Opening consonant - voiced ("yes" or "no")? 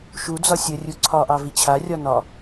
no